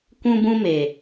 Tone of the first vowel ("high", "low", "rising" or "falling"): high